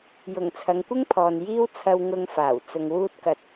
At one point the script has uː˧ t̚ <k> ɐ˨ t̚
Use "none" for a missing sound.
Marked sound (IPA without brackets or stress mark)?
k